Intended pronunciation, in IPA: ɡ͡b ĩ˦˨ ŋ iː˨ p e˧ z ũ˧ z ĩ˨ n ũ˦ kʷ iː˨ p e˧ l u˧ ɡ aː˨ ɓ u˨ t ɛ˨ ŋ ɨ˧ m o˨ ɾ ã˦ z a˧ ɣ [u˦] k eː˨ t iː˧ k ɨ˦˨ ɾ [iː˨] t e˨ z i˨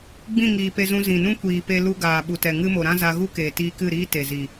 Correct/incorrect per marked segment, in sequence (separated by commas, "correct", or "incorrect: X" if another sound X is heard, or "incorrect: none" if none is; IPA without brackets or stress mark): correct, incorrect: iː˦